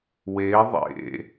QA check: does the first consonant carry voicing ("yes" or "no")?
yes